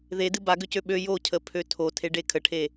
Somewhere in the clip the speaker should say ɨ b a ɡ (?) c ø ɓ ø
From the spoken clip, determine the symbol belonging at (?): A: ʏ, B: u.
A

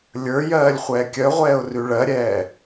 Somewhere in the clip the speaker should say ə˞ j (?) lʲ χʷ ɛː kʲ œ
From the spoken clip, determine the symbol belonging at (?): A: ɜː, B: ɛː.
A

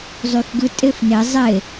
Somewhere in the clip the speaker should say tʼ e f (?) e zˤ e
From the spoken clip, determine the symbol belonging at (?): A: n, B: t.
A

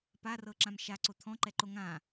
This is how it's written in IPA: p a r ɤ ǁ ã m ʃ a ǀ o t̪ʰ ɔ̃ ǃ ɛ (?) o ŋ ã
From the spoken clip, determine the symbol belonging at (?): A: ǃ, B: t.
A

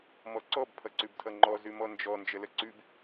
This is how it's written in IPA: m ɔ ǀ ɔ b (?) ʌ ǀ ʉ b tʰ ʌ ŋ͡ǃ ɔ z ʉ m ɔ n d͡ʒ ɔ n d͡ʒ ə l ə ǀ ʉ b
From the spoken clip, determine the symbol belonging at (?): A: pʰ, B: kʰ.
A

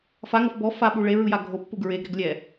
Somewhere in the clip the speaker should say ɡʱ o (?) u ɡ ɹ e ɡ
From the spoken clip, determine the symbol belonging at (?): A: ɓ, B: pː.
B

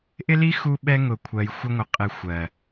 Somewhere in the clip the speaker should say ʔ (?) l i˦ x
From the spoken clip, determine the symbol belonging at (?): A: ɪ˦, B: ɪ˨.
A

